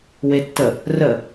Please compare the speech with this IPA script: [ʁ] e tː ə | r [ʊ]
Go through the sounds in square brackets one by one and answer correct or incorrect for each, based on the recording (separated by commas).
incorrect, incorrect